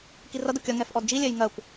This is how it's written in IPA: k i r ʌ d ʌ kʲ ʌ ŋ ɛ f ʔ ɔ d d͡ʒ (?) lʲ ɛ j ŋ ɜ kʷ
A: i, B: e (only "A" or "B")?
A